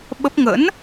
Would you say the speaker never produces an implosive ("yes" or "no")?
no